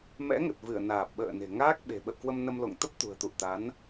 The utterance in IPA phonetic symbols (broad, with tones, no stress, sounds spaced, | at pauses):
m ɛ̰˧˥ ŋ ə˨˩ t̚ v ɨ˧˩ ə̯ n aː˨˩ p̚ ɓ ə̰ː˧˨ n e̤˨˩ ŋ aː˦˥ k̚ ɓ e̤˨˩ ɓ ə̰˧˨ w k w ə˧ m n ə˧ m l o̰˧˨ ŋ t̪ ə˦˥ p̚ t̪ ṳ˨˩ ə̯ t̪ ṵ˧˨ ə̯ t̪ a˨˦ n